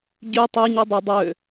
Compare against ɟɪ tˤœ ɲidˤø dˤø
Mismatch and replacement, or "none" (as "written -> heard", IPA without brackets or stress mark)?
ɪ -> y